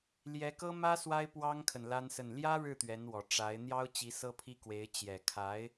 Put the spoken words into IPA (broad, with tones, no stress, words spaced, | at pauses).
ljɛ˧˥kɤ˥mä˥ swa˥ɪ̯pwɑ˥ŋkʰə˨n la˥nsə˥˩n ljä˥ɻɻ̩˥˩ t̪ɥɛ˧˥nwɔ˨˩ ʈ͡ʂa˧˥ɪ̯ n̪jɑ˥ʊ̯t͡ɕi˧˥ sɤ˥pʰi˥kwe˧˥ɪ̯ t͡ɕjɛ˨˩kʰa˧˥ɪ̯